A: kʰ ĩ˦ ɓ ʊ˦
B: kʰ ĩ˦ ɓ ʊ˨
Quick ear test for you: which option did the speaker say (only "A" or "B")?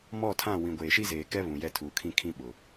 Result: B